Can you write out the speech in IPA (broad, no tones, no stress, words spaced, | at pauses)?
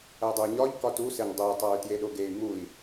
ædˤuy̯ɲɒʎ kɒtuseɲ dˤitˤæy̯ tjeɗoɡey̯ mui̯